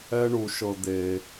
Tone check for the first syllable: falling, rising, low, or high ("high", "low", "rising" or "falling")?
high